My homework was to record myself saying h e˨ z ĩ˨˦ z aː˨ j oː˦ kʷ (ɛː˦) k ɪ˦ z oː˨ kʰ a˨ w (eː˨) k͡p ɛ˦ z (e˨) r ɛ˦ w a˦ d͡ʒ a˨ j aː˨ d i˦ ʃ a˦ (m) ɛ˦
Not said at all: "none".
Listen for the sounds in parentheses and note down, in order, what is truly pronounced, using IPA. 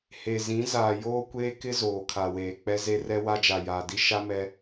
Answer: eː˦, eː˨, e˦, m

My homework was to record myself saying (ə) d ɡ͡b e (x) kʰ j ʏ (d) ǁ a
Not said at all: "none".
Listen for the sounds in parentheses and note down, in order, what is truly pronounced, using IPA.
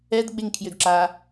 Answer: ɛ, ŋ, d

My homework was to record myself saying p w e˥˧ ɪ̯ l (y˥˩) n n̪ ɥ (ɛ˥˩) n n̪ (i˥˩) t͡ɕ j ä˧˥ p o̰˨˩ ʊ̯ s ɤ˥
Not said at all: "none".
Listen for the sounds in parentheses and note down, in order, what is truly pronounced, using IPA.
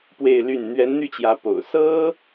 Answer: y˥˩, ɛ˧˥, y˥˩

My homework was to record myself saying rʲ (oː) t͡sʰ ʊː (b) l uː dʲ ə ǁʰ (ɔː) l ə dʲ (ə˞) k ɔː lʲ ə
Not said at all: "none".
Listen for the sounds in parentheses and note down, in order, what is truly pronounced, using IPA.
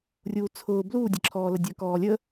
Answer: uː, b, ɔː, ə˞

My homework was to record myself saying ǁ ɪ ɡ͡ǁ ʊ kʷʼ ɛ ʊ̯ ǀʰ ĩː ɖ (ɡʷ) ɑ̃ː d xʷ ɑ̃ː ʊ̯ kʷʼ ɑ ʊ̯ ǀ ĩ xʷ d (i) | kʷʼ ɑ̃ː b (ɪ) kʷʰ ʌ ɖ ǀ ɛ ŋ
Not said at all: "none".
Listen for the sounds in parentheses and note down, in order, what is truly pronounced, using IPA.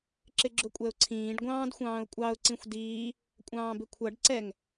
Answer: ɡʷ, iː, ɪ

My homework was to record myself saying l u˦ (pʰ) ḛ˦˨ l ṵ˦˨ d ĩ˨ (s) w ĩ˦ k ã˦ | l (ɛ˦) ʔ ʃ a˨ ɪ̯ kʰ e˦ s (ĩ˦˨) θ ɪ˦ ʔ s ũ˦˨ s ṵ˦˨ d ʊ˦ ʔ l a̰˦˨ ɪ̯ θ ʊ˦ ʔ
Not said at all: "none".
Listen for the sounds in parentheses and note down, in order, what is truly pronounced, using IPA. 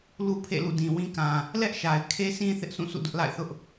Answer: pʰ, none, ɛ˦, ĩ˦

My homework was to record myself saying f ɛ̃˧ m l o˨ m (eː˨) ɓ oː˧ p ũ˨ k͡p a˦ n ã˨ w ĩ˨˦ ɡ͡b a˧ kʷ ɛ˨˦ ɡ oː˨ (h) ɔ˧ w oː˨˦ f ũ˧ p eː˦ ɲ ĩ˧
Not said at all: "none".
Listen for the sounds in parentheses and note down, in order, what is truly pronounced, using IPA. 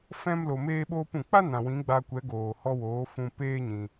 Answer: eː˧, h

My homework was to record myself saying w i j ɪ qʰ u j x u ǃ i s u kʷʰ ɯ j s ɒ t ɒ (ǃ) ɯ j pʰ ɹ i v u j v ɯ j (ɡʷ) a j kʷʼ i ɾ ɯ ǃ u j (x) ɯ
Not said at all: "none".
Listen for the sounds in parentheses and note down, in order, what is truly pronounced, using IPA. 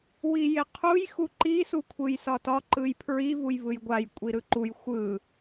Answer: ǃ, ɡʷ, xʷ

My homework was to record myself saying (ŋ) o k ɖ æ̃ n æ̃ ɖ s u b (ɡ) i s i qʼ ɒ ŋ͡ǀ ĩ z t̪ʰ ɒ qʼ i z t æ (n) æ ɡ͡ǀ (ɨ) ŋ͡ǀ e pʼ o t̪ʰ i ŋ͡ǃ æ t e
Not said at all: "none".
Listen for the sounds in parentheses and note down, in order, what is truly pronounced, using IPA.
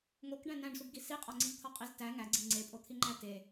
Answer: ŋ, ɡ, ŋ, i

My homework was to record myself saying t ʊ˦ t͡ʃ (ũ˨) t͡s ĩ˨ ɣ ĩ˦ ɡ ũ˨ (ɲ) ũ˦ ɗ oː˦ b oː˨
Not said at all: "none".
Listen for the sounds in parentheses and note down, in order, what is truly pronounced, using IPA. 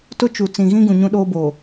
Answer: u˨, ɲ

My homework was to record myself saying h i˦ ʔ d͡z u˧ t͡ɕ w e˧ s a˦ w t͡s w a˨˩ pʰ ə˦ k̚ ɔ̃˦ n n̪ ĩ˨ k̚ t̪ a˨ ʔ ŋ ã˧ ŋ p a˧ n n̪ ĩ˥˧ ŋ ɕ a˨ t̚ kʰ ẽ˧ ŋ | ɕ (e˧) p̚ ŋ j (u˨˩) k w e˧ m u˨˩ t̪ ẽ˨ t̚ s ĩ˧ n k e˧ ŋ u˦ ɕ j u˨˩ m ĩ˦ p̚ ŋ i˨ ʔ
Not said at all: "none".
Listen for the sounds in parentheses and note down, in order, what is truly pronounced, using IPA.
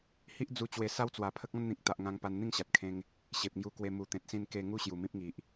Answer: e˨, u˧

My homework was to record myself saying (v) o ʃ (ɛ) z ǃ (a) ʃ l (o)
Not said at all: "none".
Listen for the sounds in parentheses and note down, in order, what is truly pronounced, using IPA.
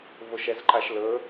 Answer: v, ɛ, a, ɵ

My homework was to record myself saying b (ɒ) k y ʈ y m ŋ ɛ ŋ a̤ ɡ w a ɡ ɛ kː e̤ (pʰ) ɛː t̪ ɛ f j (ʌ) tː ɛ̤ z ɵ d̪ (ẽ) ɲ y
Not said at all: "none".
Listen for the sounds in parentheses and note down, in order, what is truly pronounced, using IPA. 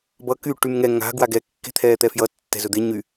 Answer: ʌ, t̪ʰ, ʌ, e

